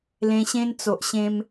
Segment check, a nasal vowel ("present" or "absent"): present